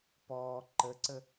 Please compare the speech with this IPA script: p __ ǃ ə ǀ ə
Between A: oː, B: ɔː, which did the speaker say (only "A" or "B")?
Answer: B